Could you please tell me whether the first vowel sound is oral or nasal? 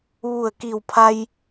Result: oral